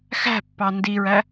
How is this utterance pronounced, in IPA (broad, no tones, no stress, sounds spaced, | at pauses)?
x æ̤ pː ɑ n d i ɹ æ